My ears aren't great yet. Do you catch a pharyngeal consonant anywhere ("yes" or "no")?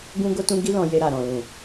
no